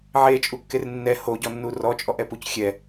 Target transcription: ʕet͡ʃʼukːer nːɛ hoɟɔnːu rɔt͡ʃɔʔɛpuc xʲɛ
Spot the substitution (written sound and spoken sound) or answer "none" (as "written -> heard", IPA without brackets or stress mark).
t͡ʃ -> t͡ʃʼ